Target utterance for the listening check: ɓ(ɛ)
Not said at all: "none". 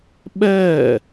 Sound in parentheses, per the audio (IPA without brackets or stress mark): ɛː